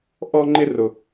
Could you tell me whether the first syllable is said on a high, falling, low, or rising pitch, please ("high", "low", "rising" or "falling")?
high